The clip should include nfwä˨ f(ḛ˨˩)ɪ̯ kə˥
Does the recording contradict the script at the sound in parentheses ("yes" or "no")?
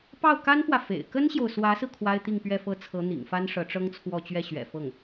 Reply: no